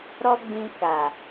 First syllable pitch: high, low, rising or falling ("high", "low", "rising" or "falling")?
high